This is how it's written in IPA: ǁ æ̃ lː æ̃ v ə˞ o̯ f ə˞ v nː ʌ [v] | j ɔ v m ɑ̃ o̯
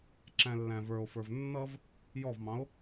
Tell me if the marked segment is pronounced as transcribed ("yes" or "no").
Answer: yes